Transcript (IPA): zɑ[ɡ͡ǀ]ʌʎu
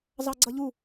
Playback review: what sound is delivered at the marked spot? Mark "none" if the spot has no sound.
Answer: ɡ͡ǀ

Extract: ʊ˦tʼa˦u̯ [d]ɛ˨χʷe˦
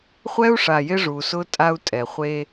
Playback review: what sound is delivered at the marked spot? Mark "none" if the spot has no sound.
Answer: tʼ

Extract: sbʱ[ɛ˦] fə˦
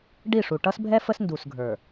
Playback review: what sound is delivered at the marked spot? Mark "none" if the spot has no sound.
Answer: ɛ˦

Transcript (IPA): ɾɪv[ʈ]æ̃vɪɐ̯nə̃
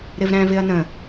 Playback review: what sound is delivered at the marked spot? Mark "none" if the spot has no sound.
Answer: ɾ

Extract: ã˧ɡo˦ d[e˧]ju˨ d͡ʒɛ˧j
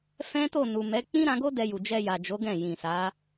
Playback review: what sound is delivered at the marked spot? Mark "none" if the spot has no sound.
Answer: ɛ˧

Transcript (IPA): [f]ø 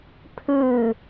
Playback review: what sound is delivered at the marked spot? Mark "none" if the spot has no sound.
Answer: pʰ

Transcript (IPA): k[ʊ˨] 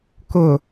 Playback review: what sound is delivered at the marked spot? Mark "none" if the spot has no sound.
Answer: ʊ˨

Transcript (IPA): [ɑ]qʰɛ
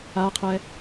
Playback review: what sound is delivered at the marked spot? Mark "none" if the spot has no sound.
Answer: a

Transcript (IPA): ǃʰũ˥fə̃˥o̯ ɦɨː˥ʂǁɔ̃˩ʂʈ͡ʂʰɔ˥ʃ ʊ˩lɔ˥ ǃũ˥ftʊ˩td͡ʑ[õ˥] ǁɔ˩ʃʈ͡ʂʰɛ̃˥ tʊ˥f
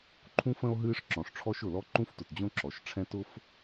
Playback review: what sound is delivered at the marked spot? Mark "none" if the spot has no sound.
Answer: õ˥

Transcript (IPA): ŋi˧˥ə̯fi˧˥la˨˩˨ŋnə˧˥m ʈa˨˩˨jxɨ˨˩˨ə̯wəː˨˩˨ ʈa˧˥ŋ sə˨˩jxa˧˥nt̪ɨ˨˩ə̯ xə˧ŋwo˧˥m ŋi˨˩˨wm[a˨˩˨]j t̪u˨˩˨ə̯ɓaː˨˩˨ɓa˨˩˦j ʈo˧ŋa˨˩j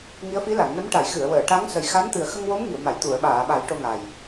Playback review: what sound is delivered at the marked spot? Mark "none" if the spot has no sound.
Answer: a˨˩˨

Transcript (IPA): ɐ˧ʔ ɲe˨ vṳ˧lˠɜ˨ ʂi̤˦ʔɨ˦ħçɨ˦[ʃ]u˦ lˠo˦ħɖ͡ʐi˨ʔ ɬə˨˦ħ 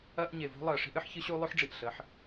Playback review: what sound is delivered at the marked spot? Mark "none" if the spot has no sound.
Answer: ɕ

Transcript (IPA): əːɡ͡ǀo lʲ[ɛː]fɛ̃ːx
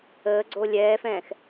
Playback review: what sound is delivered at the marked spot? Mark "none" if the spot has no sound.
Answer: ɛː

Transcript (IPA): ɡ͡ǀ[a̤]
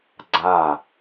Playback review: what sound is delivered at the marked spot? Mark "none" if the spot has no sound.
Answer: a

